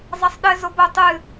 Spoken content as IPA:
zˤ ɐ sˤ ɗ ɘ z o b o tˤ ɨ

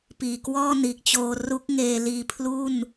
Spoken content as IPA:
p iː˨˩ k w ɔː˥˩ n iː˨˩ k̚ t͡ɕ oː˧ r u˦˥ k̚ ŋ eː˧ l iː˧ pʰ l u˥˩ n

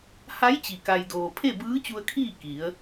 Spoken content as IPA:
h a˧˥ j t͡ɕ i˩ k a˩ j d oː˩ pʰ e˥˨ b ɯː˧˥ t͡ɕ u˧ ə̯ kʰ iː˥˨ k i˩˧ ə̯

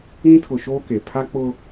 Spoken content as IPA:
ĩ˦ tʰ ʊ˨ ʃ oː˦ k e˨ pʰ a˦ k͡p ʊ˦

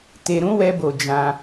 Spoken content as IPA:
t e˧ ɾ ũ˦ w ɛ˧ b o˨ d͡ʒ ã˧

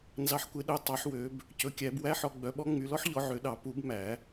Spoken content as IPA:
n z ɑ˨˦ ħ kʷ e˨˦ ɗ œ˨˦ tˤ ɑ˨˩˦ ħ w ø˨˦ b | c ɵ˨˦ kʲ æ˨˩˦ b w æ˦˥ ħ ɔ˨˦ ɡ͡b œ˨˦ ɓ ɔ˦˥ ŋ͡m y˨˦ l ɔ˦˥ ħ ʎ ɔ˨˦ ʕ ø˨˦ ɗ ɑ˨˩˦ p u˨˩˦ b m æ˨˩˦

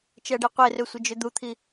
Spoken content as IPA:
t͡ʃ ɜ ɖ i qʷ e r ø sʷ ɪ d͡ʒ ø d̪ u t̪ʰ i

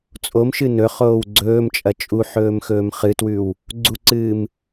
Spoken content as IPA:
t͡sʼ o m ʃ ɨ n ɵ χ oː w ɡ͡ǀ ɵː m t͡ʃʼ ɐ t͡ʃʼ u ħ ɵː m x ɵː m χ ɨ t w ʉ w | ɡ͡ǀ u ǀ ɨː m

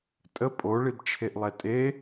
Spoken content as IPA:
tʼ ə pʼ o ɭ i b t͡ʃʰ e ʔ lˠ ɛ tʼ e

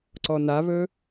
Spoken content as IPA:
ǀ ɔ n a β ɵ

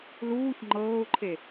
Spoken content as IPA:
l uː ç ŋ͡ǃ ɤː ʊ̯ ǃʰ e

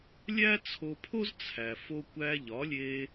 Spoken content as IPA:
lʲ æ˥ t͡sʰ o˧ pʰ o˥ z t͡sʰ æ˩ f o˧ kʷ æ˧ ʎ ɒ˩˥ lʲ e˧

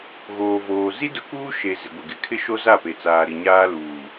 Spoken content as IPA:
ɣ oː˨ v oː˨ z i˦ d ʊ˨˦ k uː˦ ʃ e˨ z ɪ˨ ɡʷ ɪ˨ ɡ ɪ˨ kʰ ɪ˦ ʃ o˦ z a˦˨ p e˨ t͡s aː˨ ɾ i˨ ɲ aː˦ l uː˨

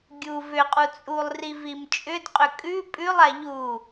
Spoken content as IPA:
ɡʲ u v ʏ qʼ u t͡sʼ u lˠ r i v i m t͡ʃʼ ʏ d qʼ ʏ kʼ ʉ pʼ ʉ lˠ a ʎ u

